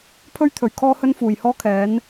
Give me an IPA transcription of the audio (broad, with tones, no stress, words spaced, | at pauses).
pʰɵ˥ɥt̪ʰɵ˨˩ɥ kʰɔː˥hɵ˥nfuː˨˩jhɔː˥ kʰɛː˨˥n